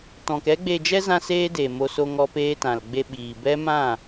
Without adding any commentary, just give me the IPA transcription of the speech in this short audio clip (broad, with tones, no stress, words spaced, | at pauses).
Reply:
tɔ̃˧k ɛ˦ɡ͡be˧d͡ʒɛ˦ zã˦seː˦deː˨mo˧ so˧ŋɔ˧ peː˧tã˨lɡ͡be˧ ɓiː˨bɛ˦mã˦˨